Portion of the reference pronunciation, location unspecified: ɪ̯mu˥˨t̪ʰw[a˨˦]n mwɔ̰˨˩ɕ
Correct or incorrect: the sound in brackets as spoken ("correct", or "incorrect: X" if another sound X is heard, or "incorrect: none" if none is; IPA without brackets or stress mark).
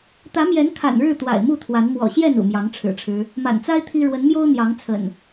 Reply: correct